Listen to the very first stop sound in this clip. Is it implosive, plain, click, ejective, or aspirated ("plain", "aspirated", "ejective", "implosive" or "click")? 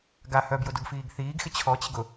plain